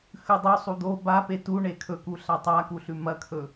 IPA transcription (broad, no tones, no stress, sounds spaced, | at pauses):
x ʉ dˤ o sˤ u d̪ o b a p e t u ɳ e kʰ ɵ k u ɬ a tˤ a k u ɬ ʉ m ɐ kʰ ɵ